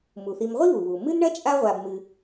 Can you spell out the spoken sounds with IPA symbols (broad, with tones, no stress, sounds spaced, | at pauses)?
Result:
m u˩ θ i˨ m ʁʷ i˥ β u˩ β u˩ m ɨ˥ n ɳ ɐ˥ t͡ʃʼ a˦ ʁʷ a˨ b m ɨ˨